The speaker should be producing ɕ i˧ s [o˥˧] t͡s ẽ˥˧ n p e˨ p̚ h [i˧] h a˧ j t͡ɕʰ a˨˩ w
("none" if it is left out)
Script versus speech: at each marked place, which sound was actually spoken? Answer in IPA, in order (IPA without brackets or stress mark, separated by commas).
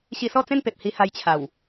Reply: ɔ˥˧, i˧